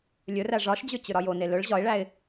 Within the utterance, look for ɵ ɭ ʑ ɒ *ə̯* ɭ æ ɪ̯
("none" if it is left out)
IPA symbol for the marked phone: ɪ̯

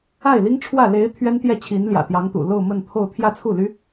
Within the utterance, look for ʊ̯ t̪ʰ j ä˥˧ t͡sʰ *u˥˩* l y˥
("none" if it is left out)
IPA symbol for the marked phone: u˥˩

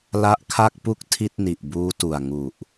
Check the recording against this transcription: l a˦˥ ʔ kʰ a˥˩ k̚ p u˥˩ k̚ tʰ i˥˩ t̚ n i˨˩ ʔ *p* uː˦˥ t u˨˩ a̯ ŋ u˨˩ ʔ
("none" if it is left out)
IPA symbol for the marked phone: b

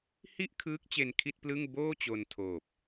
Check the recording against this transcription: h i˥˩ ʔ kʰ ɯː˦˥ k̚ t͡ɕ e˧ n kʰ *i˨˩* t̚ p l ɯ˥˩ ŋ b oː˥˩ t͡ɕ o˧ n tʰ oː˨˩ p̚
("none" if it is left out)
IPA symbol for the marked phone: i˥˩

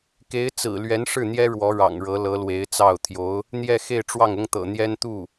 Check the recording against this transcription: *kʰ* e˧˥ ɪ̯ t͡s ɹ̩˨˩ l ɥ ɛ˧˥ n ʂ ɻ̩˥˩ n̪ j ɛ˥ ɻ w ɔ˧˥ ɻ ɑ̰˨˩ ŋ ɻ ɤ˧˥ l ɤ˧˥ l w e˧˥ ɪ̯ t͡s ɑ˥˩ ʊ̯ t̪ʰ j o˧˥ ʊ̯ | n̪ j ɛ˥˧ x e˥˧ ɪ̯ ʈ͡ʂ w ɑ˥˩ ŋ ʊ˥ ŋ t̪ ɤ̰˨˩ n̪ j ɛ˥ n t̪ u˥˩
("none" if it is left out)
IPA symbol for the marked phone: k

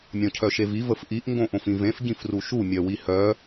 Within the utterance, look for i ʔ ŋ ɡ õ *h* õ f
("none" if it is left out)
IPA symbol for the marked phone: ʔ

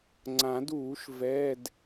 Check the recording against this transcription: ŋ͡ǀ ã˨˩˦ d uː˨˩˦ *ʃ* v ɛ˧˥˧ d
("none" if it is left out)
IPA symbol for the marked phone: ʃ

